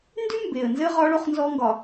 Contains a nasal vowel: no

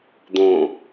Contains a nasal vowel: yes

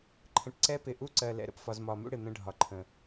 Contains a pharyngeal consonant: no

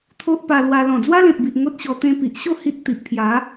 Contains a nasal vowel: yes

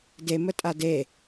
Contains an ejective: yes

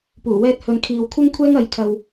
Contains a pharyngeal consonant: no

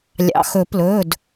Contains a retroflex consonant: no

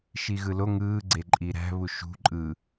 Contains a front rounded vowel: no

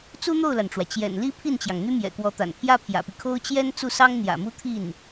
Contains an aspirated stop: yes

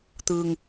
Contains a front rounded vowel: no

